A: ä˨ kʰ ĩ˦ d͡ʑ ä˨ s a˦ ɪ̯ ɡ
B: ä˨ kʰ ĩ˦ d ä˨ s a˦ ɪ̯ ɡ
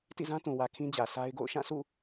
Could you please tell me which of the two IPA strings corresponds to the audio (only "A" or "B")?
A